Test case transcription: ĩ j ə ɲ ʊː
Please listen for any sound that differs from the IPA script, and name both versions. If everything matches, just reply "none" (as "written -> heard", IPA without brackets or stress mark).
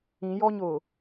ə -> ɔ